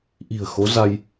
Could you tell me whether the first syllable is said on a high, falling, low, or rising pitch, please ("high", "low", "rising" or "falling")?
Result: low